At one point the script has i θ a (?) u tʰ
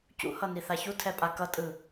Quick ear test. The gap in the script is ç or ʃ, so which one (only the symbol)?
ç